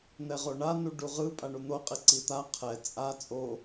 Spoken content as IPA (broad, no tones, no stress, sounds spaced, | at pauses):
n̪ ɛ ʁ o ɳ a n u ɖ u ʁ ɯ pʼ a ɳ u n̪ o qʼ i ǀ i t̪ a qʰ ɛ t͡sʼ a t͡sʼ o